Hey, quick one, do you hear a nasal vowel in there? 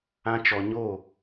yes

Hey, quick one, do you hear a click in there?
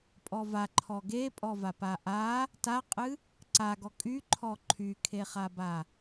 yes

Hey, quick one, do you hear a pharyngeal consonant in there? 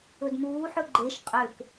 yes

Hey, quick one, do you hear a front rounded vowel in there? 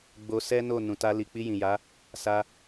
no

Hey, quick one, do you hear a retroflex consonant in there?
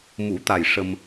yes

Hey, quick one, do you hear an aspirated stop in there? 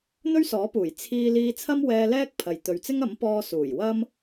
yes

